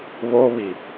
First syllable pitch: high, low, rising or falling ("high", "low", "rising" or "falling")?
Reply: high